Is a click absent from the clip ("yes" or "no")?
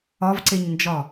no